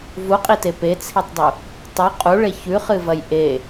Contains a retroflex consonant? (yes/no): yes